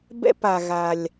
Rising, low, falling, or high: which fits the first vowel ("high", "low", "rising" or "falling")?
high